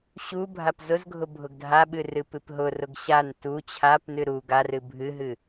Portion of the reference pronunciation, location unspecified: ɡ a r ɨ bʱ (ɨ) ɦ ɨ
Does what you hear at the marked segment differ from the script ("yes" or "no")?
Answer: no